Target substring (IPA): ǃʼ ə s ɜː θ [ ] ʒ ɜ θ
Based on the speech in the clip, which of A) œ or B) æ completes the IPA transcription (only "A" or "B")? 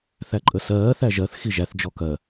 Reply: B